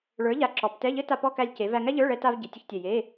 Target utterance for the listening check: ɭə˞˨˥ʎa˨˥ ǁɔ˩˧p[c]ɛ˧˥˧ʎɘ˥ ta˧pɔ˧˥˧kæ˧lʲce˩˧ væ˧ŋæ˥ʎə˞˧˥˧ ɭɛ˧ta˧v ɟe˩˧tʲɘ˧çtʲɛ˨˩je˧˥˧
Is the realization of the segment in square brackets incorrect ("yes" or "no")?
yes